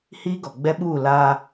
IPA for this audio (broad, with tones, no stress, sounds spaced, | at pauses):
h iː˦ ɡ ɔ˨ ɡ͡b ɛ˦ ɓ uː˦˨ l aː˦